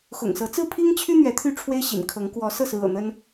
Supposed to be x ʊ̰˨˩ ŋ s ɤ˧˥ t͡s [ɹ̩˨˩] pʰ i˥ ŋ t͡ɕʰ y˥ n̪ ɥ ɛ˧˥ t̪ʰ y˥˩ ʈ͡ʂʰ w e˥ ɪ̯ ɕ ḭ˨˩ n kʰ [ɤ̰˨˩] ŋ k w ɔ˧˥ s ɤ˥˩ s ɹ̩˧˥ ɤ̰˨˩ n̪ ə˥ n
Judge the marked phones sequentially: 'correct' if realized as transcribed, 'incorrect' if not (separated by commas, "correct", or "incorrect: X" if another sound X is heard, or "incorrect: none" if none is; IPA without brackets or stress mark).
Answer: incorrect: ɹ̩˥˩, incorrect: ɤ˧˥